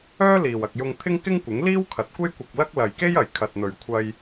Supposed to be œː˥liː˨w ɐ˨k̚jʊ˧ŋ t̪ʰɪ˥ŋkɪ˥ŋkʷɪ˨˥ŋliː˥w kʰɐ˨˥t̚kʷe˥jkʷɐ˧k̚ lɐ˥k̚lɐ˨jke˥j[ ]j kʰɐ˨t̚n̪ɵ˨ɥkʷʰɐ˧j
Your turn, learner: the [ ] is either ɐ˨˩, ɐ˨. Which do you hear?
ɐ˨˩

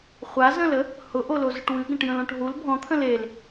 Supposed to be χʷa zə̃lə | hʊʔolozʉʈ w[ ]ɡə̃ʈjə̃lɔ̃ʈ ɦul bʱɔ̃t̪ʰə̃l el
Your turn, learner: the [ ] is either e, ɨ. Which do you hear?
ɨ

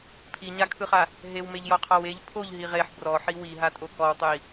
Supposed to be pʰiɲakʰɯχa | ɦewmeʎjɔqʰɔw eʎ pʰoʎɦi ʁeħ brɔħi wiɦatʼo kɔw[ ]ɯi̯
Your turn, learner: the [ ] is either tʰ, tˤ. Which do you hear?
tˤ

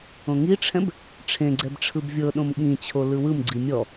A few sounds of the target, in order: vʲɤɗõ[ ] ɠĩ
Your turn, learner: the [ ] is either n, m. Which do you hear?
m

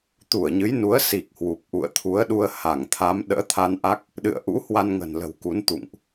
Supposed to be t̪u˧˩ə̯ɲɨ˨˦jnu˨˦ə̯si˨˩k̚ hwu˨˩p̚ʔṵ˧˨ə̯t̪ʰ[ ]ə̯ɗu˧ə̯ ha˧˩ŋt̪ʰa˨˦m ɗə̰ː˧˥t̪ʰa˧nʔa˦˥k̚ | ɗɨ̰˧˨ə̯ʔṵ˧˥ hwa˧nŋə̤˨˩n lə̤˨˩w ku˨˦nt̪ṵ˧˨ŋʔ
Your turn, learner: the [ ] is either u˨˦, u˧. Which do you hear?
u˨˦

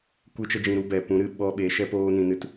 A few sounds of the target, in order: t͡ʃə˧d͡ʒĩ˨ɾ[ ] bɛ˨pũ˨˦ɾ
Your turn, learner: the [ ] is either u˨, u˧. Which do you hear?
u˧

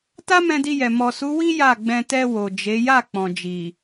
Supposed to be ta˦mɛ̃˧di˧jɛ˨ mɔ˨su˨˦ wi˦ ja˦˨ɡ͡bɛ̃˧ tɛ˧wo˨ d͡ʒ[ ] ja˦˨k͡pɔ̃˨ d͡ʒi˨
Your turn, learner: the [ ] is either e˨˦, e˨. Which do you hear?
e˨˦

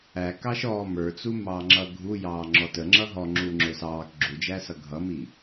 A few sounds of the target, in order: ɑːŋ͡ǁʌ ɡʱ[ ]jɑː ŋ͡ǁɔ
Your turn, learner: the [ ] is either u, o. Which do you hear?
u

